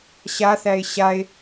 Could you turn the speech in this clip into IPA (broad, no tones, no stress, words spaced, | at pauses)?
ɕaθæe̯ ɕae̯